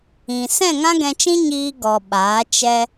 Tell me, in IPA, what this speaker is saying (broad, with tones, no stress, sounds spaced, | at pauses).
ĩ˨ s ɛ̃˦˨ ŋ ã˦ ɡ ɛ̃˧ t͡ʃ ĩ˦ ɲ iː˧ ɡ ɔ˨ ɓ aː˨˦ t͡ʃ ɛ˦